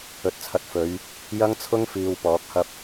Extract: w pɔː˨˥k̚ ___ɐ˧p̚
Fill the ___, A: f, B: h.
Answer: B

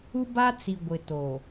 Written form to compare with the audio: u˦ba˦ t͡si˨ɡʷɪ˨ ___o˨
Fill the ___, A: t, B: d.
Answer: A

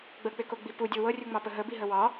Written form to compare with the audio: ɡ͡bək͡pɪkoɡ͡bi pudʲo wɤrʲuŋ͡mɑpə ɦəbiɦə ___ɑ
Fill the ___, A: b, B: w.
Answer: B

